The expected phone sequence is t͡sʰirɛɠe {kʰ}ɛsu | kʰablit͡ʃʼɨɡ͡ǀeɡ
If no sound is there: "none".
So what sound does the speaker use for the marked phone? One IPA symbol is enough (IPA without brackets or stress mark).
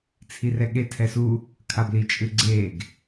tʰ